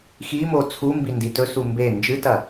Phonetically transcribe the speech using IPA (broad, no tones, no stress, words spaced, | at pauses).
ximo t͡sʰumbindi tɵsu mbe nd͡ʒɨtɐ